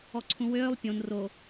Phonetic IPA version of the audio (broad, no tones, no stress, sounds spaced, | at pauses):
ɔ ǀʰ ũ w øː lˠ pʲ õ n r o